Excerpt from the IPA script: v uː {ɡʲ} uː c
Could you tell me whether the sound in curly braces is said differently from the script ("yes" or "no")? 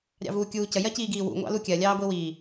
yes